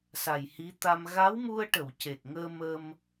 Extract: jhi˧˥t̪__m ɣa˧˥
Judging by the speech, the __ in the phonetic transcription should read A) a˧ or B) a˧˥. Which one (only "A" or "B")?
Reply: A